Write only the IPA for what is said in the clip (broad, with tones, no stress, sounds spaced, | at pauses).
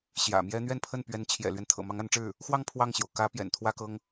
ɕ j ä̰˨˩ m j ɛ˥ n̪ ɥ ɛ˥˧ n pʰ ə˥˩ n p ɥ ɛ˧˥ n t͡ɕʰ j ɛ̰˨˩ l ɥ ɛ˦ n t̪ʰ ɤ̰˨˩ m ɑ˧˥ ŋ a˧˥ n ʈ͡ʂ ɻ̩˥˩ | x w ɑ˥˧ ŋ pʰ w ɑ˥˩ ŋ ɕ j o˩ ʊ̯ k ä˧˥ p j ɛ̰˨˩ n t̪ʰ w ä˥ k ɤ˥ ŋ